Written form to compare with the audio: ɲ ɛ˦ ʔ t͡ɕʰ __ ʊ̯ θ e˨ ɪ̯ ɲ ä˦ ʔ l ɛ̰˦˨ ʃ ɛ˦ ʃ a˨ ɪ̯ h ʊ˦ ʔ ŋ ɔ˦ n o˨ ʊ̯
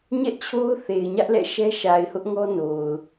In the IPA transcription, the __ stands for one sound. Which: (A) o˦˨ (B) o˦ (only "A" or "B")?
B